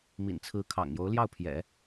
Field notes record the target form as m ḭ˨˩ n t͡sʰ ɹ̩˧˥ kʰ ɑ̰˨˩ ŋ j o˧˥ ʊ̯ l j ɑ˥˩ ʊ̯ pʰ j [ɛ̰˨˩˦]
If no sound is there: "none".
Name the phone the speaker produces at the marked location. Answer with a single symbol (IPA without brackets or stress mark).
ɛ̰˨˩˦